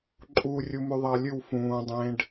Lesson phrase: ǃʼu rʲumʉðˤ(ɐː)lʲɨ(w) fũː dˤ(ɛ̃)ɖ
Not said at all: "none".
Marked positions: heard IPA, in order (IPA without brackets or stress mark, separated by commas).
ɐː, w, ẽ